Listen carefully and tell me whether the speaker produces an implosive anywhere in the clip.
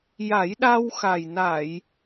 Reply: yes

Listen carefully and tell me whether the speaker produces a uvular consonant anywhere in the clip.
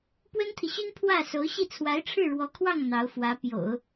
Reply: no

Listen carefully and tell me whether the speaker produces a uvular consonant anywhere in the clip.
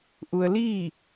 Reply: no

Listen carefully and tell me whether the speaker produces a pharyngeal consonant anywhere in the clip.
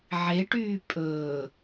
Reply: yes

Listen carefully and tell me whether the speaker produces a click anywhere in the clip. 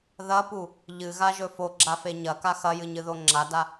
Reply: yes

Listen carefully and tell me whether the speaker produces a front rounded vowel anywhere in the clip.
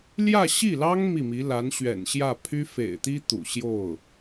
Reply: yes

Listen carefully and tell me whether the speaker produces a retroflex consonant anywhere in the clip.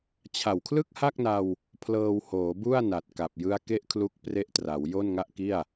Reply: no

